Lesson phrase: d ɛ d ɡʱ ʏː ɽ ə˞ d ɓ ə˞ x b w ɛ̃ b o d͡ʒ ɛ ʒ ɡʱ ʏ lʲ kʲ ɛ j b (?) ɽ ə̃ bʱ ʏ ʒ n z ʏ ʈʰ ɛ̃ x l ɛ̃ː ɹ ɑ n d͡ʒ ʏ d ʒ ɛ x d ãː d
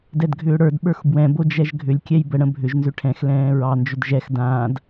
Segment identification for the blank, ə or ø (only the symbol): ə